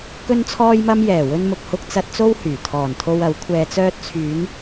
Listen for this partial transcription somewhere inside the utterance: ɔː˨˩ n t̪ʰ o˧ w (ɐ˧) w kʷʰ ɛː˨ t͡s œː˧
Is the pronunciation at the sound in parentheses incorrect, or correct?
incorrect